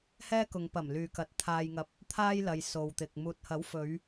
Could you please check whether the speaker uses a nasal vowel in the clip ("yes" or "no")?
no